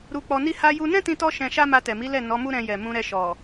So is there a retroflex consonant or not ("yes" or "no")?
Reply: no